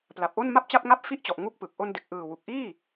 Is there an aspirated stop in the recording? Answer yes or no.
no